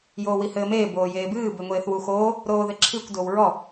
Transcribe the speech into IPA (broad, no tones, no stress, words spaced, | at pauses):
joːwihɘːmeː boːjeːbɨː beŋʷeːθwuxoː | ɾoːðɘǁʰikʷ dowɹɔ